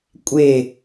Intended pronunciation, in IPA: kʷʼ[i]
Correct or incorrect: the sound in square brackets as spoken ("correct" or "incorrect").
incorrect